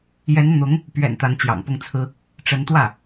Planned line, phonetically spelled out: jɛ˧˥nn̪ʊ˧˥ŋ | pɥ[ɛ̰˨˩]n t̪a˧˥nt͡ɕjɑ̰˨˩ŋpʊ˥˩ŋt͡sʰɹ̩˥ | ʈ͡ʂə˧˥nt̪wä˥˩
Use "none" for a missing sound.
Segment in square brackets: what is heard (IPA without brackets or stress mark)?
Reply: ɛ̰˨˩